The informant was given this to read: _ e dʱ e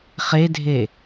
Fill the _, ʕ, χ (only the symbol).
χ